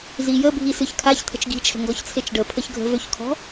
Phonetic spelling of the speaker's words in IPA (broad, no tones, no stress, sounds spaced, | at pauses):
z i j ə bʱ i s ɨ ç kʰ a ç t̪ʰ ə̤ t͡ʃ ɡ i̤ t͡ʃʰ ə̤ ŋ ɡ ɔ ç t͡sʰ e t͡ʃ ɖ ə pʰ ə ç ɡʱ ə̤ v ø ç kʰ ɔ̤